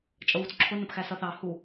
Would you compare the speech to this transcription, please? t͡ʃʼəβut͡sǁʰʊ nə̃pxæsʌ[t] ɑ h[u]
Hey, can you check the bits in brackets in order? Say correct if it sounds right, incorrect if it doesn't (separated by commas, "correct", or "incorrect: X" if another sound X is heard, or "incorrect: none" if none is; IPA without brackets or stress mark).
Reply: incorrect: θ, correct